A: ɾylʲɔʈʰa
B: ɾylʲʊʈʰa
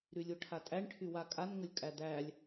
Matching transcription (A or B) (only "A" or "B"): B